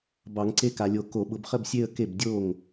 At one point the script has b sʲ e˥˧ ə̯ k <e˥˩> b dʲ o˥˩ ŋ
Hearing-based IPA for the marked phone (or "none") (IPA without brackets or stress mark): e˥˩